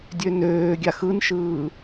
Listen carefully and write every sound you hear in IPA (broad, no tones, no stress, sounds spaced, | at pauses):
dʲ ø n øː ɡʲ a x ɯ n ʃ ɯː